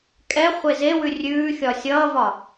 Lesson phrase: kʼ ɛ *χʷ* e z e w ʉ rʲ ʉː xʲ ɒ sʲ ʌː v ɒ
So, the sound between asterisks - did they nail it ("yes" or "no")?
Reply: yes